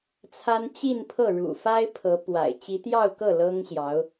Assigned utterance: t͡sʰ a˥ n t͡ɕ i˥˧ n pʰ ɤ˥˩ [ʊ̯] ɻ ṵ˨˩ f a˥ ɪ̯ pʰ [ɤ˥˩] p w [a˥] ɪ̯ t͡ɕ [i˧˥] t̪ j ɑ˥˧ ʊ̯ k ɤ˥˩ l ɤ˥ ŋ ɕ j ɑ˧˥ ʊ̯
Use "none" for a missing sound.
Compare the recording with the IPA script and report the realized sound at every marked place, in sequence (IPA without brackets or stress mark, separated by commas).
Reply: none, ɤ˧˥, a̰˨˩, i˧˥